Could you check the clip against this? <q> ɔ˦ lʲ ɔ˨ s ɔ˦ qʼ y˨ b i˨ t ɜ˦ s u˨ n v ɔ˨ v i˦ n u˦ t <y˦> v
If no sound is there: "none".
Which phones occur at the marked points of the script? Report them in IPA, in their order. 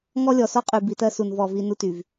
ŋ, y˨

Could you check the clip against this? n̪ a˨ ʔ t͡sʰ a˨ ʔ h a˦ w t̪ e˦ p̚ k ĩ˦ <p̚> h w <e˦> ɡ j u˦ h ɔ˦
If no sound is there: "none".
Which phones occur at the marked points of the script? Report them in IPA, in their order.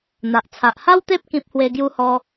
p̚, e˦

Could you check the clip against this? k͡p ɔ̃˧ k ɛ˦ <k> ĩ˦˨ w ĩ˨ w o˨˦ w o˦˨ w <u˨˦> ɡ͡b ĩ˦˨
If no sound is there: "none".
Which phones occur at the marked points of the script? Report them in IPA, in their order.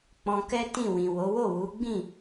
t, u˨˦

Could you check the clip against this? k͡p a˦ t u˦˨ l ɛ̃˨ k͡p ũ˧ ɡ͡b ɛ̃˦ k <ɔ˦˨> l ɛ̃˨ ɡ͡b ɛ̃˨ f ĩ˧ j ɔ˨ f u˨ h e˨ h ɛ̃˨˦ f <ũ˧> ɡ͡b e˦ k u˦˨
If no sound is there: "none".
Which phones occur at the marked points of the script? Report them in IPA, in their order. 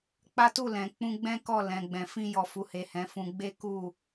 ɔ˦˨, ũ˧

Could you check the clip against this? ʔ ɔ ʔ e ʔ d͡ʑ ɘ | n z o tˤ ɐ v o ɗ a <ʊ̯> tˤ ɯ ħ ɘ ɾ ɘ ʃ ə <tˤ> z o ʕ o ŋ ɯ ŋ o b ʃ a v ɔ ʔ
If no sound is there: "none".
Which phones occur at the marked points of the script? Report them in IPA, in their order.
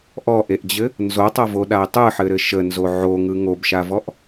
ɪ̯, n

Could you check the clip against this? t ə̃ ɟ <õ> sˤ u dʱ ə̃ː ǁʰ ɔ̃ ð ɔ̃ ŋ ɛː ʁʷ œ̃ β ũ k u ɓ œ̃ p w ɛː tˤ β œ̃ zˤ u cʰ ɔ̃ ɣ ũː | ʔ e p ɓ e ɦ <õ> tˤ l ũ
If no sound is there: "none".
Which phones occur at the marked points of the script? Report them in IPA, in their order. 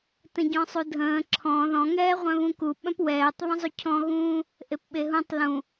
ɔ̃, ũ

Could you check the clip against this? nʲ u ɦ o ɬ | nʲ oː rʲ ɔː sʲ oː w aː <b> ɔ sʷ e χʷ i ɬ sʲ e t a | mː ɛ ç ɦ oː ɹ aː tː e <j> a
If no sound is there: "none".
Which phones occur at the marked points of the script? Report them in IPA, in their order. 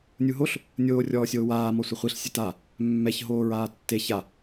m, ç

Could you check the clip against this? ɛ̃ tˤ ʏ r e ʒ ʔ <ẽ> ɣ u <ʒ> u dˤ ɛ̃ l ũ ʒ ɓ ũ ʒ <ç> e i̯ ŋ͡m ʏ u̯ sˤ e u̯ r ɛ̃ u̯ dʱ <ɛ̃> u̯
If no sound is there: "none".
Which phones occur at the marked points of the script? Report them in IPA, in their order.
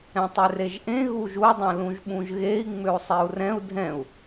ẽ, ʒ, ɣ, ɛ̃

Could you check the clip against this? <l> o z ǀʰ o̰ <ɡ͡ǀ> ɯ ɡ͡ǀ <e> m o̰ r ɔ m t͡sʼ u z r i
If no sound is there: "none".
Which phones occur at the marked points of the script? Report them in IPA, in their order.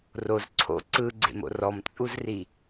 r, ǀ, ḛ

